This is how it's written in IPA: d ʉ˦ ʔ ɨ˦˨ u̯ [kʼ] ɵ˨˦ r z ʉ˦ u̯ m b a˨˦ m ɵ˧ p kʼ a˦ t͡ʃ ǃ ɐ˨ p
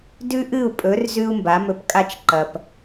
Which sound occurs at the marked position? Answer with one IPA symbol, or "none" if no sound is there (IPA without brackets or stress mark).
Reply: pʼ